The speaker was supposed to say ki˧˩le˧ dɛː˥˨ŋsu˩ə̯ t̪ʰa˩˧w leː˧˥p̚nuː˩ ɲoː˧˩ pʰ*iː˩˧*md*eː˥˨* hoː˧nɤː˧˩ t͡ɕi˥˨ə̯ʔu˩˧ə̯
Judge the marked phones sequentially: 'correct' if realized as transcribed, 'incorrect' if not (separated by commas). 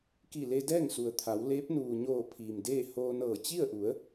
incorrect, correct